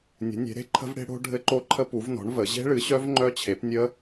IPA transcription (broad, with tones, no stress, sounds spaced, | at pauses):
nʲ ə̤˩˥ nʲ e̤˩˥ ɾ e̤˦˥ ǃʰ ə̤˦˥ v ɽ e̤˦˥ ɽ o̤˦˥ ɖʱ ɘ˦˥ ǃ o˦˥ ǃʰ ə˦˥ p u˩˥ v n ɔ̤˩˥ ɳ v ə˩˥ ʑ e̤˦˥ ɭ ɨ˩˥ ɕ œ˦˥ v ŋ͡ǃ œ˦˥ t͡ɕʰ e˩˥ p nʲ ə˦˥